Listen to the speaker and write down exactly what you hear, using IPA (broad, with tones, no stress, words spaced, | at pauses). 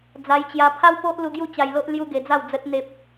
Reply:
d͡za˧jt͡ɕja˧ pʰa˦wpo˦ʔlu˧ ɡju˥˧t͡ɕa˧jlo˦ʔ lju˦ɡe˧d͡za˥˧wd͡zə˦t̚ n̪e˦p̚